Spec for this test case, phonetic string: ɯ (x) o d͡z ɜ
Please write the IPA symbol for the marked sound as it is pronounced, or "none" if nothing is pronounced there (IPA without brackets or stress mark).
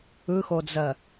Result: x